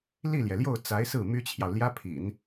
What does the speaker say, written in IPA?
l i˥˩ l j ɛ˩ l j o˥˩ ʊ̯ t͡s a˧˥ ɪ̯ s ɹ̩˥˩ m y˥ t͡ɕʰ j ɑ˨ ʊ̯ l j ä˥ pʰ ḭ˨˩˦ n

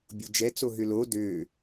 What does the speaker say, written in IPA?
bʲ u d͡ʒ ɛ t͡s o ɦ ʏ l o d ø

